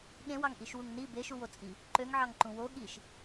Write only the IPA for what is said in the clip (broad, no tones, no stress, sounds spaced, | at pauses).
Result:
ɠ ẽ w ɑ ŋ ʔ i ʃ w u ŋ n i b e ʃ u w o t͡sʼ i | ǃ ø ŋ ʕ ɑ ŋ ǃ ũ w o ɠ i ʃ